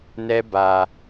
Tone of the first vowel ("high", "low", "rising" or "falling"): high